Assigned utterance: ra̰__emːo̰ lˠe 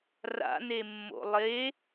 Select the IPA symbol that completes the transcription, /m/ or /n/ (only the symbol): n